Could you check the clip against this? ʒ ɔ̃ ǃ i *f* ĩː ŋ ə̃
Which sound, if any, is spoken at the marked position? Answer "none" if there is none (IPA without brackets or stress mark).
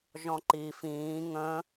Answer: f